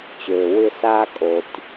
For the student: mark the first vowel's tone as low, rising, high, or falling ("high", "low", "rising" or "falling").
low